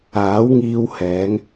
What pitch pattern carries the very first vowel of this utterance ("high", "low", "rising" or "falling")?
rising